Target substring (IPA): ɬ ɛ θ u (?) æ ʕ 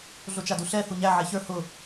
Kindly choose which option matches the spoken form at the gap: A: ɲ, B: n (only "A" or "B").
A